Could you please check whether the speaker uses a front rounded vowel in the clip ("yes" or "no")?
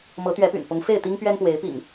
yes